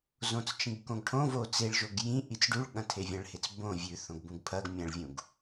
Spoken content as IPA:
z õ t͡s t͡ʃ ĩ ɡ k õ ɡ ʈʰ õ v o t͡s e ɭ ʒ o ɡ j ĩ ʔ i t͡s ɖ u ɭ ɠ ɐ̃ tʰ e vʲ ɐ̃ ɭ h e t͡s b õ vʲ ʉ θ õ ɡ b ũ ɡ pʰ ɐ ɡ mʲ ɐ̃ ɭ vʲ ũ ɡ

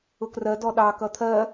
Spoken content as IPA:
ʊ k r ɜ d ɔ ɗ ɑ k ʌ t̪ʰ ɜ

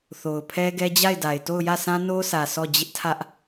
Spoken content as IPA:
θ o˨ ʊ̯ pʰ ɛ˦ ɡ ɛ˦ d͡ʑ a˦˨ ɪ̯ d a˨ ɪ̯ t o˦˨ ʊ̯ j ä˦˨ s ã˦ n o˦ sʰ ä˨ s ɔ˦˨ d͡ʑ ɪ˦ ʔ tʰ ä˦ ʔ

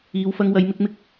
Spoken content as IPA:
iː˨˧ w f ɐ˧ ŋ w ɐ˨˧ j m ɪ˧ k̚ m ɪ˧ k̚

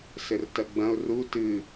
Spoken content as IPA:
s ɘ r t ɐ ɡ͡b ɐ̃ ʊ̯ r u t ɨ

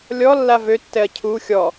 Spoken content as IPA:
lʲ ɔ lː a v ø tː ɛ ɐ̯ cʰ u xʲ ɔ

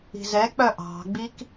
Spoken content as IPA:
i̤ z ɛ k͡p œ ʔ ɑ̤ ɡ͡b i k

